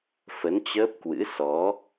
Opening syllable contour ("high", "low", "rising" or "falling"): rising